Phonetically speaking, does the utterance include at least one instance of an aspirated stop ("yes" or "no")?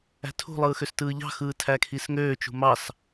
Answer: yes